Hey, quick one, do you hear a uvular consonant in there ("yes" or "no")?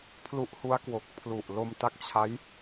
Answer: no